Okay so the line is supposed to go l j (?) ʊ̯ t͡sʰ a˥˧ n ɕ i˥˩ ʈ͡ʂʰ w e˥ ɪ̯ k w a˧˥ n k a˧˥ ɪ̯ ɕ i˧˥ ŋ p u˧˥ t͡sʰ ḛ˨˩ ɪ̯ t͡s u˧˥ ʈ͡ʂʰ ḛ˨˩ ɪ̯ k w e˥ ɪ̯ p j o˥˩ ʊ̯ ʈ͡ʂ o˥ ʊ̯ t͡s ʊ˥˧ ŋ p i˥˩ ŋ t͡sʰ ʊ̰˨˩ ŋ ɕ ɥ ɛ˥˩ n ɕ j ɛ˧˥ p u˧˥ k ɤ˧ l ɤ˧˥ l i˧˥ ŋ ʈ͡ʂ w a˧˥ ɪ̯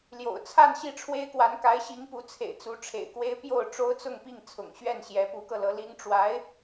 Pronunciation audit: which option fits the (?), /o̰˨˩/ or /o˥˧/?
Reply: o̰˨˩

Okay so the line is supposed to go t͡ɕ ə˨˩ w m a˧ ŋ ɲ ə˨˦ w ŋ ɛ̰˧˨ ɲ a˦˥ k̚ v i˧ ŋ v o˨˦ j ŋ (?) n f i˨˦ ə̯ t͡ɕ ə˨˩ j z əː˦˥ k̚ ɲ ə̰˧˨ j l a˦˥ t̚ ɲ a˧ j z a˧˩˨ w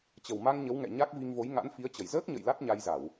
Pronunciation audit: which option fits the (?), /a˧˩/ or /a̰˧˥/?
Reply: a̰˧˥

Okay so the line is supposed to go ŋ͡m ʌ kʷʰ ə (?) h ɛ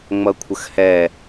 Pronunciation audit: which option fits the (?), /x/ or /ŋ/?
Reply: x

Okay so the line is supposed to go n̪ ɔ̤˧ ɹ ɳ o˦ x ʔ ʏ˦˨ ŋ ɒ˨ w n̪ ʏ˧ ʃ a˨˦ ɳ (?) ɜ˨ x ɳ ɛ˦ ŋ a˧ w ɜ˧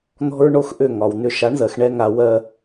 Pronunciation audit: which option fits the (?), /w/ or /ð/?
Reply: ð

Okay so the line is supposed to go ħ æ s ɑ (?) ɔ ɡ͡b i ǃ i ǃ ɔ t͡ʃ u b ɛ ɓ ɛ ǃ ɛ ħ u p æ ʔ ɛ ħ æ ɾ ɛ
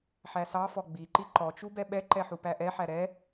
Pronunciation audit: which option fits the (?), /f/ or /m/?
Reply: f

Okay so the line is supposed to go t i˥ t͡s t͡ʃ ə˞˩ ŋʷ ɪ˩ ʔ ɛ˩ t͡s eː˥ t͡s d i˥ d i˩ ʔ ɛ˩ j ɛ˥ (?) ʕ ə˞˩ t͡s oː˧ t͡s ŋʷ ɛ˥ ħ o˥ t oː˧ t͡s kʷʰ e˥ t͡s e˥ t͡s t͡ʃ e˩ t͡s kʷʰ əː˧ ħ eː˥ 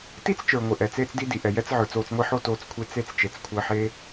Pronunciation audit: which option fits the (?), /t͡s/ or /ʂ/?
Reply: t͡s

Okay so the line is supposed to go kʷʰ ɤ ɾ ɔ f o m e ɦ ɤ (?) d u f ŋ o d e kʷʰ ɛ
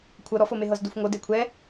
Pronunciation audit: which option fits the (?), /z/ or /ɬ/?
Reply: z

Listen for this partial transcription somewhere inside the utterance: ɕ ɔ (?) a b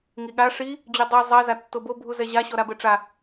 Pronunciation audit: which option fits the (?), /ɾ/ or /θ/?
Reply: ɾ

